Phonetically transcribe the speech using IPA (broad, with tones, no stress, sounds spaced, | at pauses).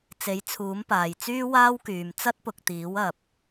t͡s e˨˥ j t͡sʰ uː˨˥ m p aː˨ j t͡s yː˥ w aː˥ w k yː˨ m t͡s ɐ˥ t̚ p ʊ˨ k̚ t̪ iː˨˥ w ɐ˨ p̚